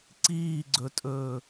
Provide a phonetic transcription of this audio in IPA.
ǀ iː ɡ͡ǀ ɵ tʼ ɵː

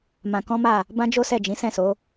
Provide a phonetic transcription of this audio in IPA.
m ã˧ k ɔ̃˦ m a˦˨ | b ã˦ d͡ʒ o˦ s ɛ˦˨ d͡ʒ ĩ˨˦ s ɛ̃˦˨ s o˨˦

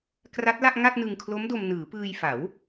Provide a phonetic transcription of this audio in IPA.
k r a˦˥ t̚ l a˥˩ ʔ ŋ a˥˩ t̚ n ɯ˧ ŋ kʰ l o˦˥ m d o˧ m n ɯː˩˦ p ɯː˧ j f a˩˦ w

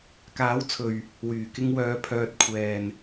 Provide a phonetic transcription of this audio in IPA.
k aː˨˥ w t͡sʰ ɵ˨ ɥ | w yː˨˩ k ɪ˧ ŋ w œː˨˧ pʰ œː˧ t̚ kʷʰ ɛː˨ n

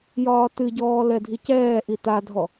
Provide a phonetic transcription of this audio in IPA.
j ɒː t ɨ ɟ ɔː l ɛ dʱ i c ɛː ʔ i t a dʱ ɔ

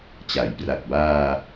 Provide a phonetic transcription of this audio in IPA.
t͡ɕ a˩˦ j p r a˨˩ k̚ b aː˧

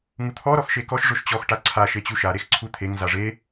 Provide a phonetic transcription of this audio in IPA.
ŋ u t̪ʰ ɔ ɾ ɔ x ʃ e k ɔ ʃ ʐ ʊ ʃ t͡ɕ ɔ x ʈ a ǀʰ a ʃ e t͡ɕ u ʃ a ɾ e x ǀʰ u t̪ʰ e ŋ z a ʐ e

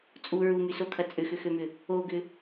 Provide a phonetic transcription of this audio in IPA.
t͡sʼ u ɹ u m y s o kʰ ɐ t͡sʼ ʏ x ʏ x ø m ʏ | o ɡ ʏ

